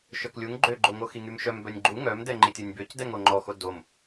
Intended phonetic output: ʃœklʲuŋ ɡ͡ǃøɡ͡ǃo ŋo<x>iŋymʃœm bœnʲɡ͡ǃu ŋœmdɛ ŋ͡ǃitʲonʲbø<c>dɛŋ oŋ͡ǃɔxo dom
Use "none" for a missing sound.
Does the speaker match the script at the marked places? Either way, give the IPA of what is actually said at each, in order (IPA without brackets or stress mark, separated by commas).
x, c